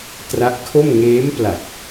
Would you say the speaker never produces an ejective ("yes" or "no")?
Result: yes